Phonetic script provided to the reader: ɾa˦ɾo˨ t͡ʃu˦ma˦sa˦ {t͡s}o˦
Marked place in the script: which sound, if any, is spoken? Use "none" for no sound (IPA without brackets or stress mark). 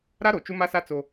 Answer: t͡s